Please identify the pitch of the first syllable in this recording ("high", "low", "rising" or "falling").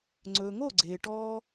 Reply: low